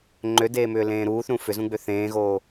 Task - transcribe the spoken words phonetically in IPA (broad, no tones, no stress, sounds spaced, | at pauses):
ŋ͡ǃ ø d eː m ʏː l ẽː ɾ uː θ ɾ ũ f ʏ z ũ ɡ͡b ø θ ẽː ɣ oː